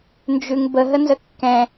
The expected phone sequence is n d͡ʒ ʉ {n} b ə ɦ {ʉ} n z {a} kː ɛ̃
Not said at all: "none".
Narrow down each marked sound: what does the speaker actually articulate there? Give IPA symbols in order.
ŋ, ə, ə

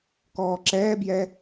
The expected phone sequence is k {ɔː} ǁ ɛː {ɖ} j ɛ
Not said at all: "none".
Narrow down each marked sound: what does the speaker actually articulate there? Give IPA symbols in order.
ɔː, b

